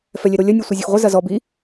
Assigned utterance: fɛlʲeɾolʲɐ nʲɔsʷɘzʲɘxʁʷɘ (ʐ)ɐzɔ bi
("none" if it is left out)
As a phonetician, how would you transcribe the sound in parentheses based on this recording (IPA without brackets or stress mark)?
z